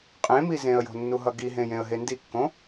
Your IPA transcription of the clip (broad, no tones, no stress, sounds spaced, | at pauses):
qʼ ẽ m i z ẽ ə̯ j o̤ nː u ɦ ʌ ɡ i ɦ ẽ j ẽ ə̯ ɦ e n d i kː õ